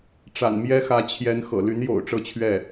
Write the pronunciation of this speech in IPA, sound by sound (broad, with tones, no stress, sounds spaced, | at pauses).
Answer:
ʈ͡ʂ a̰˨˩ n m j ɛ˥ x ä˧˥ t͡ɕʰ j ɛ˧˥ n x ɤ̰˨˩ l y˧˥ n j o̰˨˩ ʊ̯ ʈ͡ʂ ɤ˥˧ t͡ɕʰ ɥ ɛ˥˩